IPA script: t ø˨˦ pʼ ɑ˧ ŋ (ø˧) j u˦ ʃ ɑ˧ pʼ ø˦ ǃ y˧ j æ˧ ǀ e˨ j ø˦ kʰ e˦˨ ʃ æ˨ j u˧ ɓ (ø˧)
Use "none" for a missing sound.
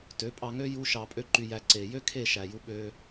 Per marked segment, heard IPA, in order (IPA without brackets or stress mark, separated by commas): ø˦, ø˧